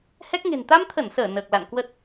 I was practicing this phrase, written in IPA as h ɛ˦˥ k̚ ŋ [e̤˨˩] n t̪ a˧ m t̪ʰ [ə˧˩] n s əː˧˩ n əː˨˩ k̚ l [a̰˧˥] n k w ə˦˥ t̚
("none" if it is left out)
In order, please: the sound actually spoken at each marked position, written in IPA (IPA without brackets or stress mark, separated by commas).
e̤˨˩, ə˧˩, a̰˧˨